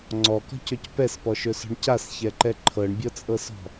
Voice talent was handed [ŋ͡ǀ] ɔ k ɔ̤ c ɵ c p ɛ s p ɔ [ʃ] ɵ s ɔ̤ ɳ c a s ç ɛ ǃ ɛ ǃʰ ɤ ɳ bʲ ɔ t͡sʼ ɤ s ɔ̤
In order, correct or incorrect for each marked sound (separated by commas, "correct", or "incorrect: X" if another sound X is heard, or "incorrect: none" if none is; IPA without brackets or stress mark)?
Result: correct, correct